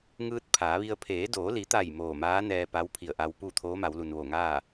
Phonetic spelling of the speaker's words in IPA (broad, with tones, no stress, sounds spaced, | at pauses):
ŋ ɯː˧ t̚ pʰ aː˩˧ ʋ i˧ ə̯ pʰ eː˩˧ d oː˩˧ l i˩˧ t̪ a˧˩ j m oː˧˩ m aː˧˥ n ɛː˧ p a˧˥ w pʰ i˧˩ ə̯ ʔ a˧ w p u˥˨ t̪ʰ oː˧˥ m a˩˧ w l u˩ n ʋ o˧˩ ŋ aː˥˨